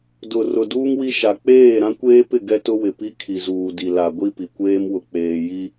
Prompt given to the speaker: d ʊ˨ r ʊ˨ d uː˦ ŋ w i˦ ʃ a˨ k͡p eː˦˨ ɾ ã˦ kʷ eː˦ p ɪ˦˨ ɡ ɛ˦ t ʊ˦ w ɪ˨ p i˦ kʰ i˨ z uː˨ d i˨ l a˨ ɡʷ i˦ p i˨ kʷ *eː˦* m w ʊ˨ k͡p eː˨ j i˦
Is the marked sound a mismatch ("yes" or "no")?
no